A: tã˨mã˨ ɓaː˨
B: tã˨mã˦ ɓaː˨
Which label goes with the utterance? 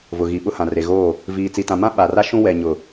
B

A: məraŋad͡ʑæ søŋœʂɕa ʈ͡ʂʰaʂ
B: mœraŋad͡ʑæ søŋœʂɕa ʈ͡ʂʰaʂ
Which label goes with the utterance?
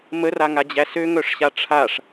A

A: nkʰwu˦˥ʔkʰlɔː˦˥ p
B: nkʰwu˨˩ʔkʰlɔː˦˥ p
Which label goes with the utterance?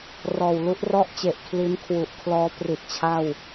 B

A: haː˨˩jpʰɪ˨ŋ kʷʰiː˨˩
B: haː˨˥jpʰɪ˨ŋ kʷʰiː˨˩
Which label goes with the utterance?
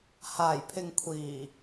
A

